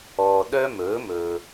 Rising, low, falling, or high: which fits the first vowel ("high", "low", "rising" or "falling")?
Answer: low